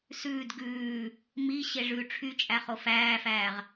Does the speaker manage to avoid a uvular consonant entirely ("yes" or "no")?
no